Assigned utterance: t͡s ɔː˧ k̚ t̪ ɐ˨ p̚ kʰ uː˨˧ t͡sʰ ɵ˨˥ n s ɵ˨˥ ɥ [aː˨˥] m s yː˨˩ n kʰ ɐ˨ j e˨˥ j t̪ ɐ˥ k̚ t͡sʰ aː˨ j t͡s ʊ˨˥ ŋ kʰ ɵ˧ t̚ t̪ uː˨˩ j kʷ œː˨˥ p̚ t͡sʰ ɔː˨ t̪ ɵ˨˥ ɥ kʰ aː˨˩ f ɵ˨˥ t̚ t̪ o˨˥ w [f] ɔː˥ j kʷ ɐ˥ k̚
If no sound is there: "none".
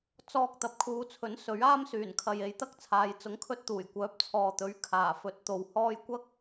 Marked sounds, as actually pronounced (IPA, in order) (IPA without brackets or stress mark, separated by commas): aː˥, h